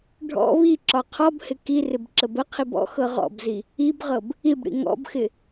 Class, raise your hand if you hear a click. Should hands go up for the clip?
yes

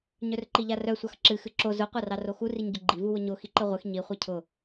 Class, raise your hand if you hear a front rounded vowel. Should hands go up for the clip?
yes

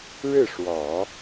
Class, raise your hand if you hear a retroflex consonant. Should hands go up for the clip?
yes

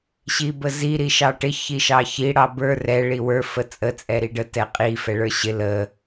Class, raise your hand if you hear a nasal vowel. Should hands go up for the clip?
no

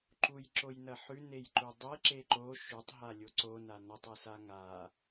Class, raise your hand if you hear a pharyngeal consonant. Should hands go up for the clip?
yes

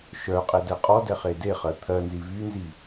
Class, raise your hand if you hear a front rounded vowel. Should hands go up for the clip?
yes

